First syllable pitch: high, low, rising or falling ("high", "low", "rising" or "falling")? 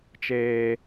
low